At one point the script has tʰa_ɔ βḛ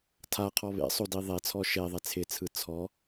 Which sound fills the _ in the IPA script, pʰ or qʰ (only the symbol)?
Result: qʰ